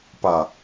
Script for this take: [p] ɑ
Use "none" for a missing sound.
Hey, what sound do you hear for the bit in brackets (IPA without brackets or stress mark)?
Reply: p